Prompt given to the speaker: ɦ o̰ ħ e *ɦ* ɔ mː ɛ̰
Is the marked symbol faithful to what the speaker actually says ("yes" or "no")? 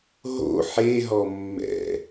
yes